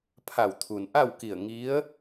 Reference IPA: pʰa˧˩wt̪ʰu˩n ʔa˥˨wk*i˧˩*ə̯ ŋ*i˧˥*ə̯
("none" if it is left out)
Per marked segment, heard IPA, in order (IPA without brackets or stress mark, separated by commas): i˧˩, i˧˥